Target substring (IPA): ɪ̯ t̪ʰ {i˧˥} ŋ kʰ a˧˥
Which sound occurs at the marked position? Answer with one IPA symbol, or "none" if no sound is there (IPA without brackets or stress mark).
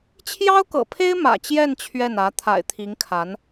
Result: i˧˥